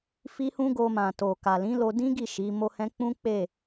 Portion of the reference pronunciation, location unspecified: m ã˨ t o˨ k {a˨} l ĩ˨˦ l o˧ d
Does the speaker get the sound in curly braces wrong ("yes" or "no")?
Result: no